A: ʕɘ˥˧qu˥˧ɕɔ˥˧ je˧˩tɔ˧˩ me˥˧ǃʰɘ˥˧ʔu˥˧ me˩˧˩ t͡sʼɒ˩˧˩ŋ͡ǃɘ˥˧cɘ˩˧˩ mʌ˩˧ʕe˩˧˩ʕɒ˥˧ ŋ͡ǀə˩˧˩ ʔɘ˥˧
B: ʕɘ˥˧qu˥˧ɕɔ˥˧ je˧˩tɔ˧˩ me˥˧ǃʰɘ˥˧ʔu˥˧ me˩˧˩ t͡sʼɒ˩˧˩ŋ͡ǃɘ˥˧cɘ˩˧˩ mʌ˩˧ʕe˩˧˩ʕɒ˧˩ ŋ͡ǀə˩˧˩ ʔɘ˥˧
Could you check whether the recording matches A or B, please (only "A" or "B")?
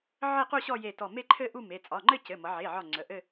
B